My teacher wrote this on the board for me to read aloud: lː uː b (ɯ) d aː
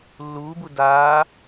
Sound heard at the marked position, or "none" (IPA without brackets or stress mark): u